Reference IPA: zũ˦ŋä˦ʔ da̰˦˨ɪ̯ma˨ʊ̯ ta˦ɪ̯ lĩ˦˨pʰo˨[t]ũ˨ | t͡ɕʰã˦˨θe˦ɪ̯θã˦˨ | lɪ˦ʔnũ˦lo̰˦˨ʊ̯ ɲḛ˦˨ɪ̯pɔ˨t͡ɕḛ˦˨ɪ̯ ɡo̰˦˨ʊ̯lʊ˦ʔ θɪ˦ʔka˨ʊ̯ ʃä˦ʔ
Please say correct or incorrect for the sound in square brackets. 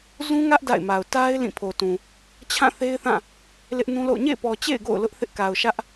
correct